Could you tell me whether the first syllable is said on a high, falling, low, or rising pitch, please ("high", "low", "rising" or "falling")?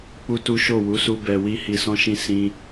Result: high